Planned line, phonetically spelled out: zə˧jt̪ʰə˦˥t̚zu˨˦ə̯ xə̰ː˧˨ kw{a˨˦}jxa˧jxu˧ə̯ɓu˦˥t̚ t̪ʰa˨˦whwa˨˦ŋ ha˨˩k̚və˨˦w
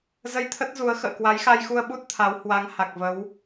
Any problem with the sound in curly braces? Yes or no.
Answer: no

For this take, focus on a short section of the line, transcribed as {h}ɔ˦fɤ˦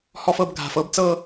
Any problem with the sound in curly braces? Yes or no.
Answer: no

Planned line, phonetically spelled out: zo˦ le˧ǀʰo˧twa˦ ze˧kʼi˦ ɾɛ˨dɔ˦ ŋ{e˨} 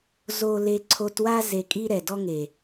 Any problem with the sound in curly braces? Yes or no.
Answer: no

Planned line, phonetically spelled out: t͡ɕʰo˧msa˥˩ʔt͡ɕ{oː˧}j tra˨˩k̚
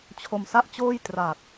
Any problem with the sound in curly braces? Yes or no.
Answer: yes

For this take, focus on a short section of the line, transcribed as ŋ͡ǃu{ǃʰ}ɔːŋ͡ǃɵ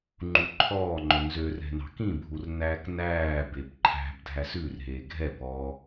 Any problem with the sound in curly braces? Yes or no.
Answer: no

